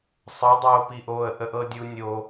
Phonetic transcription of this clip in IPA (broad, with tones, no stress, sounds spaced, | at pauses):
sˤ ɤ˨˦ dˤ oː˨ p i˨ ʔ oː˨ ə̯ ʔ ə˨ ʔ ɤ˨ dʲ u˨ nʲ o˨